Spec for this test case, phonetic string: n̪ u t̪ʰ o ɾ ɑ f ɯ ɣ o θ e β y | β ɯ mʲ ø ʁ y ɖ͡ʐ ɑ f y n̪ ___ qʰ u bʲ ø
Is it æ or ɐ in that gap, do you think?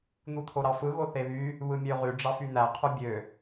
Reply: æ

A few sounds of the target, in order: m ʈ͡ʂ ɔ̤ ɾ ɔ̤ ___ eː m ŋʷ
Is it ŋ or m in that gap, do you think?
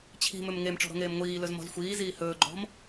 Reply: ŋ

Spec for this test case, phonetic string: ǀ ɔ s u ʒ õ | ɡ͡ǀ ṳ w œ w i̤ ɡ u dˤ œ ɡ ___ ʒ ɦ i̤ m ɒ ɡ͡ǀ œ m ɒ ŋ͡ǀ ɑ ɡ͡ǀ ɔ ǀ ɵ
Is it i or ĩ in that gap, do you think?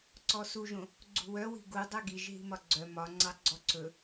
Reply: i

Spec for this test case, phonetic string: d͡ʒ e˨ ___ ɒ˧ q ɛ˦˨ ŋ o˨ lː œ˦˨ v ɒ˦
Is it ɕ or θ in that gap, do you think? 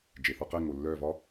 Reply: θ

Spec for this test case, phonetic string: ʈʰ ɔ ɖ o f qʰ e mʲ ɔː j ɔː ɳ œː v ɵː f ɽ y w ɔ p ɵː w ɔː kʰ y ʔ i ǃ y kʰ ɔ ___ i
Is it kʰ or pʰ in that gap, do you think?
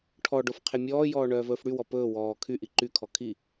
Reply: kʰ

